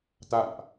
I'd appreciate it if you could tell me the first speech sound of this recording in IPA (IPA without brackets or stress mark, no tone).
t̪